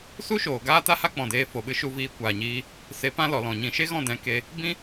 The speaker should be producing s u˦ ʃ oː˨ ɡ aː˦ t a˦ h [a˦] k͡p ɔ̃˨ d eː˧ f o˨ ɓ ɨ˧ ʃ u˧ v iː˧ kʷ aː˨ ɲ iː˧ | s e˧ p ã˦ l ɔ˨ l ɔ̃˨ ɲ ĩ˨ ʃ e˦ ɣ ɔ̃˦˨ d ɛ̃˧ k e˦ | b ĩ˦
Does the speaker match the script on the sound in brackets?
yes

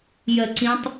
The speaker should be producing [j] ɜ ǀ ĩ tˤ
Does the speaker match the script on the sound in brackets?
yes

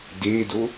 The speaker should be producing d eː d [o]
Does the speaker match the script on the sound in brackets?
yes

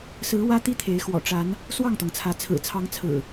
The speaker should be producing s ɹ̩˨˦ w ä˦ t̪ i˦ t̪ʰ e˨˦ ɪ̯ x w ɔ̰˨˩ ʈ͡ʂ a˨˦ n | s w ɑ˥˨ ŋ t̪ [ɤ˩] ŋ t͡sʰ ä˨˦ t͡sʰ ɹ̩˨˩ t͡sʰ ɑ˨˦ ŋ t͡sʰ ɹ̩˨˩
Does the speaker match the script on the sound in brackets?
yes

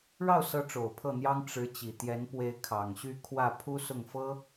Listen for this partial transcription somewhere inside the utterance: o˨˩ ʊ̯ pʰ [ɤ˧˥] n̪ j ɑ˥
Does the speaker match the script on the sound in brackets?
no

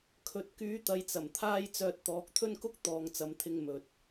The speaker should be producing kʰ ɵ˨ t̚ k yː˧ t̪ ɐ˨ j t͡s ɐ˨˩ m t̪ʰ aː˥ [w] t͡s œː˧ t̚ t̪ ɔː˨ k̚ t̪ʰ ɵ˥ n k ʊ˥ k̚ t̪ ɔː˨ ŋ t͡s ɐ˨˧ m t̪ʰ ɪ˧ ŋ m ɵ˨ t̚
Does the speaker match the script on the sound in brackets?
no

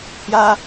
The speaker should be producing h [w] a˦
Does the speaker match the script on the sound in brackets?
no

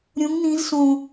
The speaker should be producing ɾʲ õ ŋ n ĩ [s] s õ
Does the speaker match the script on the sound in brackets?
no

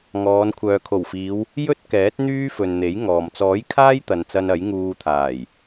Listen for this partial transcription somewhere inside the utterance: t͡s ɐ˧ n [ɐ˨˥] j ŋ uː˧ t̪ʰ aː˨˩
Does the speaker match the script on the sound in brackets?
yes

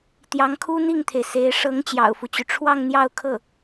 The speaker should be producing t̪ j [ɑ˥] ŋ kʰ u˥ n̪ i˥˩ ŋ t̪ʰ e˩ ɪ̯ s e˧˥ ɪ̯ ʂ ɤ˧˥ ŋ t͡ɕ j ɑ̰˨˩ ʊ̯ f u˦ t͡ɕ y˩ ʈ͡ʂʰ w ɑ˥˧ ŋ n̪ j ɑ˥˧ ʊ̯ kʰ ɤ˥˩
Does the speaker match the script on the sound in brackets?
no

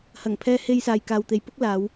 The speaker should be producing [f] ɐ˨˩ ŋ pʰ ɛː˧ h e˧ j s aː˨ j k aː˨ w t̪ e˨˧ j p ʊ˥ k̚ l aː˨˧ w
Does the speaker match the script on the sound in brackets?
no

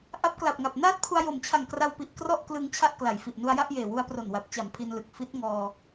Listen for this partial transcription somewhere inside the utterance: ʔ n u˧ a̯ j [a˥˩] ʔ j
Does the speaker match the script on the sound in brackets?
yes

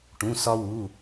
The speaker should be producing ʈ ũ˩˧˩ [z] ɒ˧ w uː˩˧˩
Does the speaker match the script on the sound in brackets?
no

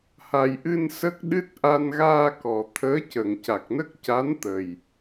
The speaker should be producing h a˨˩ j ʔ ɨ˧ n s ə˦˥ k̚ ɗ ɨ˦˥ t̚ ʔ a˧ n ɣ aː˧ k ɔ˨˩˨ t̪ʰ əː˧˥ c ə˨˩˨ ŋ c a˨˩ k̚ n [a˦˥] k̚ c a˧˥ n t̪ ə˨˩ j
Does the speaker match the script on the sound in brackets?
no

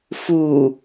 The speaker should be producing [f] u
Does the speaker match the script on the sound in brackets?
yes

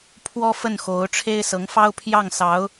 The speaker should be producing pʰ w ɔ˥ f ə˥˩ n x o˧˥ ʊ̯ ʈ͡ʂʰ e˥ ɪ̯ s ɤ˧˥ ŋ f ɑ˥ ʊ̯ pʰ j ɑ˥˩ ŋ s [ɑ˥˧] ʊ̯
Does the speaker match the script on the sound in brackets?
no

